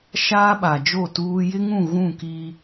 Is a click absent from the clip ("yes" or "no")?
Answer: yes